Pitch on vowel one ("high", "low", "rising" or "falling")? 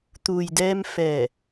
low